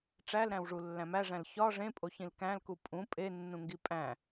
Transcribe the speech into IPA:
ʈ͡ʂ æ l ɾ æ̃ w ʐ u lː æ̃ m æ ʐ æ̃ l ç ɒ ʐ ẽ pʼ o ç ĩ l k æ̃ l k u pʼ ũ pʼ e nː ũ ŋ ɡ i pʼ æ̃

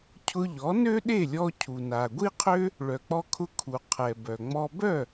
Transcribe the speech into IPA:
cʰ ʊ˧ ʎ ɔ˩˥ n ø˥ ɗ e˥˩ lʲ ɔ˧ cʰ u˩ n a˩ ɡʷ i˥ qʰ ø˥ | ɭ œ˩ k͡p ɔ˧ kʰ ʊ˧ kʰ u˩ qʰ ɛ˩ b œ˩ ŋ͡m ɔ˧ b œ˥˩

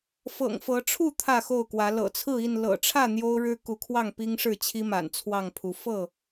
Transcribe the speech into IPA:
f ɤ̰˨˩ ŋ f ɤ˨˦ ʈ͡ʂʰ u˥˨ t̪ʰ ä˥˨ x o˥˨ ʊ̯ k w ä˨˦ l ɤ̰˨˩ t͡sʰ ɹ̩˥˨ i˥˨ n l ɤ̰˨˩ ʈ͡ʂʰ ä˥˨ n̪ j o˦ ʊ̯ ɻ ɻ̩˦ k u˨˦ kʰ w ɑ˥˨ ŋ p i˦ ŋ ʂ ɻ̩˥˨ t͡ɕʰ i˦ m a̰˨˩ n t͡sʰ w ɑ˥˨ ŋ pʰ u˨˦ f ɤ˥˨

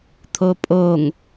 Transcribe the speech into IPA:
t̪ʰ o pʼ o ŋ

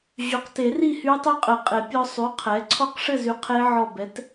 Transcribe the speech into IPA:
ʑ y˩˥ q t e˨˩˦ r i˥˨ h y˦˥ tˤ y˦˥ qʼ ɘ˨˩˦ qʼ e˨˩˦ pʲ ɔ˧ sˤ y˩˥ qʰ ɛ˩˥ ǀʰ ɔ˦˥ q ʂ ɘ˥˨ z y˧ qʰ e˦˥ ʕ ɔ˧˩ b ɛ˩˥ t

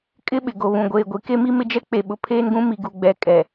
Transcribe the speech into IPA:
kʼ ɪ˦ ɓ ɪ˨ ɡ o˨ β ũ˨ ɡʷ eː˨ ɡʷ i˨ k e˦ m i˦ m ɪ˦ d͡ʒ ɛ˦ k͡p e˨ ɓ ʊ˨ pʰ eː˦ n ɡ ũ˦ m i˨ ɡ u˨ ɡ͡b ɛ˨ kʼ ɛ˨

